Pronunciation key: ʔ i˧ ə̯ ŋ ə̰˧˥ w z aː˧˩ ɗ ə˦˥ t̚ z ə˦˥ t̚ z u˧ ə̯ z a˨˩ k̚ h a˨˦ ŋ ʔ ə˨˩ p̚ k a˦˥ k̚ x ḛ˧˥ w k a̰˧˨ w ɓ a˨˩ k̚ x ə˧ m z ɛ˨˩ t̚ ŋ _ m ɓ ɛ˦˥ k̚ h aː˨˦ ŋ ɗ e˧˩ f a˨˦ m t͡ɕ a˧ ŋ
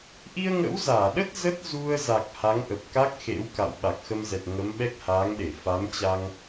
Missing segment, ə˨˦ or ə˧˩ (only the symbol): ə˨˦